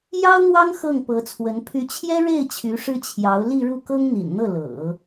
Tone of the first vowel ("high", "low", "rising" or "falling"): high